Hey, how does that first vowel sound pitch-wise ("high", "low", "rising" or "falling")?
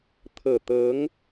low